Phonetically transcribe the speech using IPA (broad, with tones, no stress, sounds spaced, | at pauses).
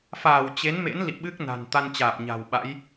f aː˧˩ w t͡ɕ e˨˦ n m ḛ˧˥ n l ḭ˧˨ ɓ ɨ˦˥ k̚ n a̤˨˩ n t̪ a˧ n t͡ɕ aː˨˩ p̚ ɲ a̤˨˩ w ɓ a̰˧˥ j